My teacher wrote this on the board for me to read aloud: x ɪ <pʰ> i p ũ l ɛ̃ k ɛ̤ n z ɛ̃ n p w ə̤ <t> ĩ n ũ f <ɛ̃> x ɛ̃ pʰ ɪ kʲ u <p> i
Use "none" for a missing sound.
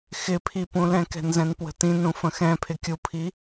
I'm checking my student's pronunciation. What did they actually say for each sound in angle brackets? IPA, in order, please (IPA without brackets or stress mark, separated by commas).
pʰ, t, ə̃, pʰ